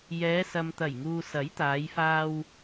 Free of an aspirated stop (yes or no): yes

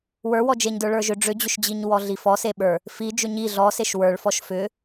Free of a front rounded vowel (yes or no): no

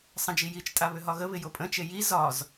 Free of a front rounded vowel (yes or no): no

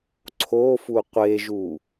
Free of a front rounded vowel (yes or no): yes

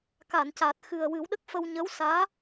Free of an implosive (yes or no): no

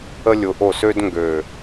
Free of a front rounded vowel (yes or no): no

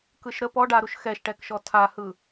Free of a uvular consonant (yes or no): yes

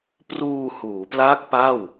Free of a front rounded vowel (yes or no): yes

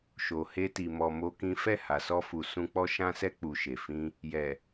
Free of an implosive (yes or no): yes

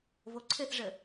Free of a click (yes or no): no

